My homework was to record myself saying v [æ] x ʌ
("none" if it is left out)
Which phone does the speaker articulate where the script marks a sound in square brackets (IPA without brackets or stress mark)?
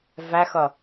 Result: æ